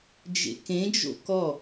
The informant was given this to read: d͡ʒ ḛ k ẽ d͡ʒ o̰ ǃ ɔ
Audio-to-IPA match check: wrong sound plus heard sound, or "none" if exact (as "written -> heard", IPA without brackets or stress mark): ǃ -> k